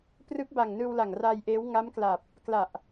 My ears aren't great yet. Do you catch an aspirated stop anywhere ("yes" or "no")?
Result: no